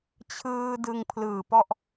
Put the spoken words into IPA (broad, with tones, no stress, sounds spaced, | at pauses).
t͡ɕʰ ɯː˧ d ɯ˧ ŋ pʰ l ɯː˨˩ p ɔ˥˩ ʔ